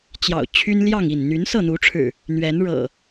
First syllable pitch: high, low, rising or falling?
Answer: low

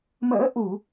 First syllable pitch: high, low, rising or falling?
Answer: rising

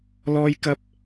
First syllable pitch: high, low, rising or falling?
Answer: high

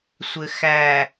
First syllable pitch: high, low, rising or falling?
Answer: low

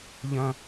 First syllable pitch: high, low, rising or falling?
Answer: high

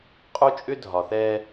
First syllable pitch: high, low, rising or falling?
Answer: high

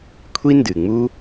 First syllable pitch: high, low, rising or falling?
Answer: high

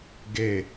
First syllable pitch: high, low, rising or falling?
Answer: falling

